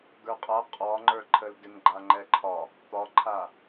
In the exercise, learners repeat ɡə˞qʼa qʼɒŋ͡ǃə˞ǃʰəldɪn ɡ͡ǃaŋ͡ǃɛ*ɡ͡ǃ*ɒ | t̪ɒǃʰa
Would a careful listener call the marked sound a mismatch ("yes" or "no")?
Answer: yes